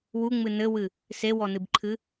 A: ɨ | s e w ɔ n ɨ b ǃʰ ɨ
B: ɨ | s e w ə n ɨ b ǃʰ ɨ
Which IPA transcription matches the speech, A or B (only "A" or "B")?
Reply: A